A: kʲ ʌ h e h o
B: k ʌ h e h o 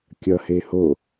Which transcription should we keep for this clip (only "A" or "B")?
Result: A